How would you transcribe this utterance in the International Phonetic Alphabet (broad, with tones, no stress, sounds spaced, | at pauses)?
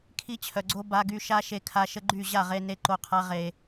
kʰ i˧ t͡ɕʰ œ˨ ɡ͡ǀ o˧ b a˨ ɡ y˨ ʃ a˦ ʃ e˧ kʰ a˧ ʃ ə˦ ɡ͡ǃ y˦˨ ʑ a˦˨ ʁ e˧ n e˧ ǃ o˧ qʰ a˧ ʁ e˨